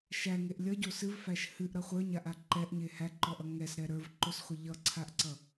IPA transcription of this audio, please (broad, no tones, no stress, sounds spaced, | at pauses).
ʃ æ ŋ e ʔ lʲ ʌ ɟ o s ɨ v f æ ʃ h ɨ ʔ ɾ ʌ χʷ ə˞ ɲ a ʔ a ǃ ɛ ʔ ɲ e h æ ǃ ɔ ʔ ʌ ŋ ɛ s ɾ ɛ ɾ ə˞ v ǃ o s χʷ ʌ ʎ ʌ ǀʰ a ʔ ǀ ʌ